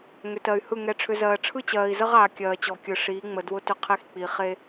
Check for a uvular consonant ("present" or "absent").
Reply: present